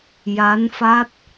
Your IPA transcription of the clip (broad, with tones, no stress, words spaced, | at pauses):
ja˧˥nfa˦˥t̚